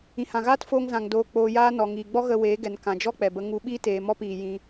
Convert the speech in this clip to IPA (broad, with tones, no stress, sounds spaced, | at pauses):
ĩ˨ h ã˨ ɣ aː˦ t f oː˧ ŋ z ã˨ ŋ d oː˧ k͡p oː˧ j aː˦ n ɔ˨ ŋ iː˨ ɡ͡b ɔ˦ ɣ ə˧ w eː˨˦ ɡ ɛ˨ n k ã˨ d͡ʒ ɔ˦ k͡p ɛ˨ b ə˦ ŋ u˧ ɓ iː˦ t eː˨ m ɔ˦ p iː˨ j ĩ˧